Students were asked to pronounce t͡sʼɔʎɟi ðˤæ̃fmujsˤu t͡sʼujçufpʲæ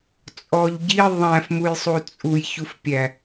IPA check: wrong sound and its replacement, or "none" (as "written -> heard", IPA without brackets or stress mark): none